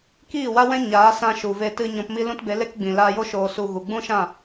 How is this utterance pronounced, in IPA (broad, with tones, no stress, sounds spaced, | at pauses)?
k iː˦˨ w a˦ w ɛ̃˦ ɲ aː˨˦ s ã˧ ʃ u˨ v e˧ t ɨ˧ ɲ ɔ̃˧ p m i˦ l ũ˦ t b e˨˦ l e˦ k ɡ͡b ĩ˨ l aː˧ j o˦ ʃ oː˧ s u˧ ɣ u˨ ɡ͡b ũ˦ ʃ ã˦˨